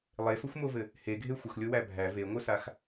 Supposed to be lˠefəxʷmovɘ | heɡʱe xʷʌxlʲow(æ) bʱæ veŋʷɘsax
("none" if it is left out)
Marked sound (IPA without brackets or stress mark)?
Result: æ